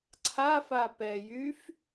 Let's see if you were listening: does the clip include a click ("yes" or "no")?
yes